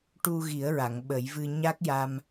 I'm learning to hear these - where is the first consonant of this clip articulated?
retroflex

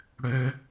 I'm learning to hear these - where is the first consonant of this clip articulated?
retroflex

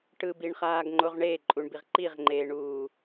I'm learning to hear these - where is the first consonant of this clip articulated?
retroflex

